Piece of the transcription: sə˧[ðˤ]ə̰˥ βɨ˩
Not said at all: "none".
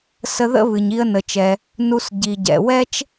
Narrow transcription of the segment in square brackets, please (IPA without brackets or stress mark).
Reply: ð